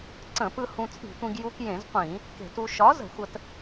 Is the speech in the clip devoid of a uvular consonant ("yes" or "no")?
no